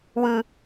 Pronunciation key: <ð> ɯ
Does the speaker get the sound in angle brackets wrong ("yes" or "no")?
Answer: yes